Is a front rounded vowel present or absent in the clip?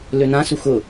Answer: present